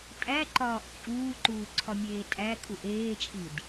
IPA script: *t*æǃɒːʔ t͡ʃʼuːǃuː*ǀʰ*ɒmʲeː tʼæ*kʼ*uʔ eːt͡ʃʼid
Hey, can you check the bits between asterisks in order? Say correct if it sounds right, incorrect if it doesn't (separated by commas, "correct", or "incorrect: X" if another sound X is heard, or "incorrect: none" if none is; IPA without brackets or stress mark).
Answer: incorrect: tʼ, correct, correct